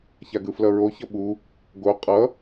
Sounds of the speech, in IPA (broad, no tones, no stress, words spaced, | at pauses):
çaɡɯflʌɹo çʌɓu | ɡo qʼʌ